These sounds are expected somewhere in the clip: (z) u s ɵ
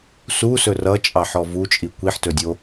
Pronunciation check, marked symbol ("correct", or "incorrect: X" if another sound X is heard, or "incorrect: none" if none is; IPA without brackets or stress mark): incorrect: s